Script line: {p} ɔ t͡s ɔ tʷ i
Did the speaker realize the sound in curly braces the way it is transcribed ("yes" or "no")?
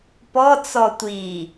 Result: yes